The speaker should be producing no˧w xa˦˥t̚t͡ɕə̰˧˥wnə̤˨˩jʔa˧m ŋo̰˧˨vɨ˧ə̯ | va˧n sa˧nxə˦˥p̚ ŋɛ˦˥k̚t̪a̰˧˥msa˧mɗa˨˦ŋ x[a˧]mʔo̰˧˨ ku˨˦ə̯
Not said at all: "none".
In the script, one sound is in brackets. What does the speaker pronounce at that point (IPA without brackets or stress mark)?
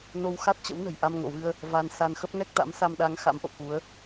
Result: a̰˧˥